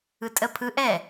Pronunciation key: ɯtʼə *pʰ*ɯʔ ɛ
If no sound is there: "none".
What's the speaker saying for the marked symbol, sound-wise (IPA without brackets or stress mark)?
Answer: pʰ